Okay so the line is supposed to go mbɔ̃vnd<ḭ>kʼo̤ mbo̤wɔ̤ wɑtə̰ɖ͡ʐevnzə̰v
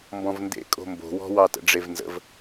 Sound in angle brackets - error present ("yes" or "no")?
yes